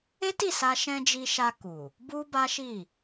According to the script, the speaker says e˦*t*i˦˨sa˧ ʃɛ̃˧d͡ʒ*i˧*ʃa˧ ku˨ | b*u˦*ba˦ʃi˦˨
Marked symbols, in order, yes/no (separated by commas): yes, yes, yes